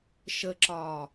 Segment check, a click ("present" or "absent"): present